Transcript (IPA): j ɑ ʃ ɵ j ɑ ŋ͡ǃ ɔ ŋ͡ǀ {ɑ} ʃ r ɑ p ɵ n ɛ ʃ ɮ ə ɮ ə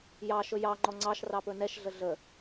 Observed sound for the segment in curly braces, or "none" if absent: ɑ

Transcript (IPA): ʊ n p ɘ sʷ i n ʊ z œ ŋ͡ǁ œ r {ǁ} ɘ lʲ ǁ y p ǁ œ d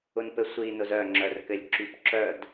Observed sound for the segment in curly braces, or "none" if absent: k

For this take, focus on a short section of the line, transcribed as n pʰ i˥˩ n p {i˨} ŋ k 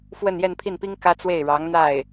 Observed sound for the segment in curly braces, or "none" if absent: i˥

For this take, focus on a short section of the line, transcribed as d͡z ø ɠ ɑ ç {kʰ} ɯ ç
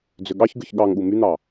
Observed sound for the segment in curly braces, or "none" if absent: ɡ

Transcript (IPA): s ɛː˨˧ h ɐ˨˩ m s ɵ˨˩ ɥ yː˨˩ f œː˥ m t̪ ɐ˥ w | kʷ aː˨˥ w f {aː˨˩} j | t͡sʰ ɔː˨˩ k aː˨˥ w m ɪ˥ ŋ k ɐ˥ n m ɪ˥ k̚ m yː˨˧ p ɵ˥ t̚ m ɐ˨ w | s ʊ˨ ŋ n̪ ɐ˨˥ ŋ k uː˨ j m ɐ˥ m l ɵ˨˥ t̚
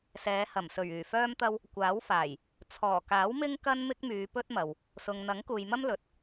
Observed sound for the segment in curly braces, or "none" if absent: aː˨˩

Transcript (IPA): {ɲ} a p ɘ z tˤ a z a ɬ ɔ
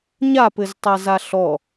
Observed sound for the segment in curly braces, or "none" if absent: ɲ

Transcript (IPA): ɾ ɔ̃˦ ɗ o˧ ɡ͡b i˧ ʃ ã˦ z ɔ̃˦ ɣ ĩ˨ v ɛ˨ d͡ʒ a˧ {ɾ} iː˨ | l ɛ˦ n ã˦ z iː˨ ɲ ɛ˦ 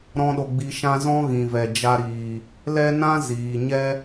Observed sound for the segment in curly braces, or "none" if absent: ɾ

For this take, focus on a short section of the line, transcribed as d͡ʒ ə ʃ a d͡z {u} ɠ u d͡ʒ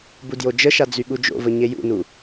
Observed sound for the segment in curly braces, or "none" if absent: y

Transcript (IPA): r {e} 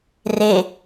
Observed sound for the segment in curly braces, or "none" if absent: e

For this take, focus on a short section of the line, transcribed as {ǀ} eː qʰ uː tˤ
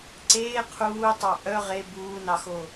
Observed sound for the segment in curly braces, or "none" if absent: ǀ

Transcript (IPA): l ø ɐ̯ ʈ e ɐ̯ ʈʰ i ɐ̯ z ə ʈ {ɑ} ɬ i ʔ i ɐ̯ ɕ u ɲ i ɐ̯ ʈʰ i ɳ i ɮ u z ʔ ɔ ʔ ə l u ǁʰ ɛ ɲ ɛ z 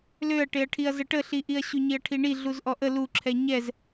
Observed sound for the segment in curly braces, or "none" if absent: ə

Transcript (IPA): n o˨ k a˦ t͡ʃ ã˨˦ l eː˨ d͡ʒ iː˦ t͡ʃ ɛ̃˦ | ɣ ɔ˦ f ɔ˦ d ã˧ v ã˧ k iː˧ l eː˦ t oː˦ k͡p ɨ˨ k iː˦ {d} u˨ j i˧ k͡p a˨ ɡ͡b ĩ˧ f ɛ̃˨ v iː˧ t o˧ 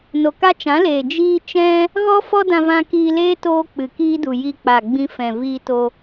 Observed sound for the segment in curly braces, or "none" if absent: d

